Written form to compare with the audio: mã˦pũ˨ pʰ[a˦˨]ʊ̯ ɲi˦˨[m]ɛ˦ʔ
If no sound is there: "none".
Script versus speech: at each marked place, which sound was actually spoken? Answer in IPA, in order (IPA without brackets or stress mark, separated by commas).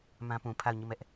a˦˨, m